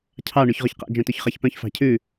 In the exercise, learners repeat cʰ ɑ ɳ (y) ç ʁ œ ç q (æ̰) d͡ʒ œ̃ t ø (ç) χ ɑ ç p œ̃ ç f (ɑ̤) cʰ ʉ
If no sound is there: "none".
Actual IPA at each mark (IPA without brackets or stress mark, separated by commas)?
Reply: y, æ̰, ç, ɑ̤